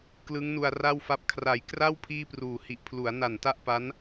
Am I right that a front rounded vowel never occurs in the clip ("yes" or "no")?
yes